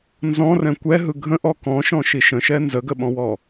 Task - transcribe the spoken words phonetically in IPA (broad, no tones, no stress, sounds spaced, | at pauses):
n z ɔ̃ r ɛ̃ kʷ ɛ ɦ ɯ ɡʱ ə̃ ʔ ɔ k ɔ̃ ʃ ɔ̃ ʃ i ʃ ə̃ ʃ ɛ n z ə ɡ ə ɓ ɔ̃ w ɔ